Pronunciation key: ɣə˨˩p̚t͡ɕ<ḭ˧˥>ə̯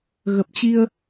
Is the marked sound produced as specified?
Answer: no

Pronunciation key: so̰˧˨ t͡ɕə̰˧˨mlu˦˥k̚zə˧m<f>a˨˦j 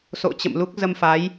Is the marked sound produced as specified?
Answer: yes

